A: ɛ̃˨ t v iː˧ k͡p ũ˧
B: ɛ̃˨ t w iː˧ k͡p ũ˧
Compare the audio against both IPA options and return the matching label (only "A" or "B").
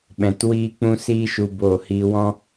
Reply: B